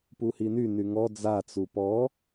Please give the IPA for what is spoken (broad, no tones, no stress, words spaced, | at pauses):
puhiny nyŋɔ d͡zat͡su pɔ